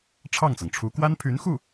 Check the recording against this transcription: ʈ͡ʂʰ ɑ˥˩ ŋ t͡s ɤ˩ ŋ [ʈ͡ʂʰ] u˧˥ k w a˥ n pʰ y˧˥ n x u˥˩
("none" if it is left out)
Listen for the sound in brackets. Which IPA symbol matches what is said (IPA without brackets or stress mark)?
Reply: ʈ͡ʂʰ